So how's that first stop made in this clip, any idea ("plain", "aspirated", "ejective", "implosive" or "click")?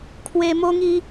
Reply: aspirated